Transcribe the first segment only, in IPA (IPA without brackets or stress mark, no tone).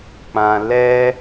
k͡p